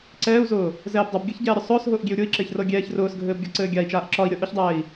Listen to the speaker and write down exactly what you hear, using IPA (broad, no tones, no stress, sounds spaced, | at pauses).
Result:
ǀ ɛː u̯ z ʊː | z ɛː b dˤ ɤ b ɡʲ ɤ ç ɟ ɛː ɾʲ ʊ sˤ ʊː s ɦ ʊː ʔ ɡʲ e u̯ ɾʲ ʊ i̯ ǁ e ç r ɤ ɡʲ ɛː ç r ʊː s ɡʱ ɘː b ɡʲ ɒ ǀ ɘː ɡʲ a i̯ t͡ʃ aː ʔ ǁ ɒ i̯ ɾʲ ɤ ʔ ʊ ç dˤ ɛː i̯